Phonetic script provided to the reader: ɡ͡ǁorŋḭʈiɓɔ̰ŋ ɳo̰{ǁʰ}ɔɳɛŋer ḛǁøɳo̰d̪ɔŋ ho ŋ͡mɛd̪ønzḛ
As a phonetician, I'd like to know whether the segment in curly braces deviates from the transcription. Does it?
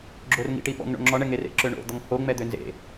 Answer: yes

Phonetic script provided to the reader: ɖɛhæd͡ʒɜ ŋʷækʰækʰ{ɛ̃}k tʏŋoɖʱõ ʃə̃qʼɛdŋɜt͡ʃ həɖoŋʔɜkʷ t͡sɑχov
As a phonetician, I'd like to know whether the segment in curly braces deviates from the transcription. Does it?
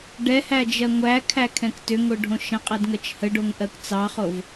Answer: no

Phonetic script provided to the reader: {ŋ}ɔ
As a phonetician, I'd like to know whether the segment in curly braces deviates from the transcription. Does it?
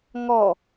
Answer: no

